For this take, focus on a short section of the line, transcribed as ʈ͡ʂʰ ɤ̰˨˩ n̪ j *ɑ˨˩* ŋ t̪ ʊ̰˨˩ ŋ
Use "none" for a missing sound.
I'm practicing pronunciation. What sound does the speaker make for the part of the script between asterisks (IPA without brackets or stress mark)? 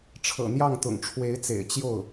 ɑ˥˩